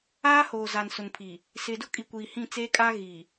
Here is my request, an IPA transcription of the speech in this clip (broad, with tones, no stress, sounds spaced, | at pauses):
aː˦ h oː˨ z a˨ n s ʊ˨ n pʰ i˨ | s ɪ˨ d ʊ˦ kʼ i˨ kʷ iː˨ h ĩ˦˨ t͡s eː˦ kʼ a˦ ɣ i˨